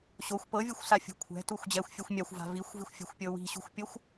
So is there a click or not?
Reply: no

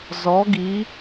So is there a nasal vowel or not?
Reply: no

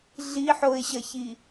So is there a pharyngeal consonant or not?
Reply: yes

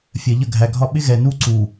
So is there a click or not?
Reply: yes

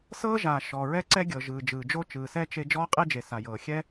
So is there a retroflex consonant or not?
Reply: no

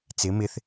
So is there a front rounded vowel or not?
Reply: no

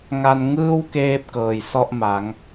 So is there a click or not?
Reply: no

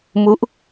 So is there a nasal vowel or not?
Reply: no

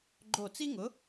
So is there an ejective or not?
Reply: no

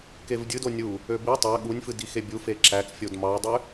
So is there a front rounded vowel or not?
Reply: yes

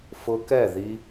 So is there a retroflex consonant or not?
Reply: no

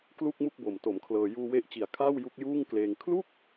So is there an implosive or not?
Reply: no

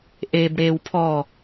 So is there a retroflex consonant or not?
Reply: yes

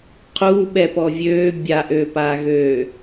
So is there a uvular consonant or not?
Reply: yes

